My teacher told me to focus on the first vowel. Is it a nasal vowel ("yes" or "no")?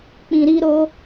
yes